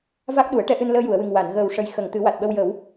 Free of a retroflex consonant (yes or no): no